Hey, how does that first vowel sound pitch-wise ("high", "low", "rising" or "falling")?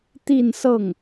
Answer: falling